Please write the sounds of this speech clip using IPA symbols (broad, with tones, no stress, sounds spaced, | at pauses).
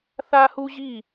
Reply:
θ a˦ h u˦ ʑ i˦˨